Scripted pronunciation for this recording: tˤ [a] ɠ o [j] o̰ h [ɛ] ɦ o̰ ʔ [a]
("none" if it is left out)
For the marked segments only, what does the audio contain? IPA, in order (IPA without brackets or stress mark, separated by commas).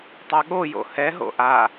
a, j, ɛ, a